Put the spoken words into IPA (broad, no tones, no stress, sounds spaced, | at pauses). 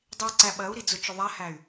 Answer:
dˤ i w ǀ æ ɓ ɜ u̯ ɾ i d͡z ʊ t͡ʃ ʊ ðˤ æ h æ y̯